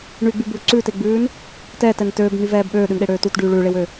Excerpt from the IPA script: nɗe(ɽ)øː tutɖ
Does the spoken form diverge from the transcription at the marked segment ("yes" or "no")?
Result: no